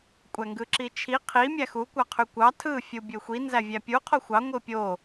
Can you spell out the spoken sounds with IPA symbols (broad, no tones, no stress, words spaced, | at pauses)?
kʷʼæŋɡɯǁit͡ʃʰi qʰi mʲæxu kʷɑqʰykʷɑ tʰɯ fʲubʲøxʷi nzævʲæpʲu qʰoxʷɑ ŋʷɯpʲo